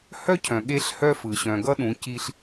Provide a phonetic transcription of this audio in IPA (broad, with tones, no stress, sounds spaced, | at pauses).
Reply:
h œ˦ cʰ œ̃˨ ɠ e˦ ɬ h œ˦ f ɯ˨ ɕ œ̃˨ ɡ ʌ˦ ɗ ũ˨˦ c i˦ ɬ